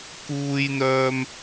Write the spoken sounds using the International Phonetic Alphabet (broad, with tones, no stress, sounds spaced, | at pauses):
k uː˥ j n̪ œː˥ m